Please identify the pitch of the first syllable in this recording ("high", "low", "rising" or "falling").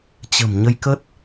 low